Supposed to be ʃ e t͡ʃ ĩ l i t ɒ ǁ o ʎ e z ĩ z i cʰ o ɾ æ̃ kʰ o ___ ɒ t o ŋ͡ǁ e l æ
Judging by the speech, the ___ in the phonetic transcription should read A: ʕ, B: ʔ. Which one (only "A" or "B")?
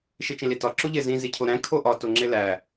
B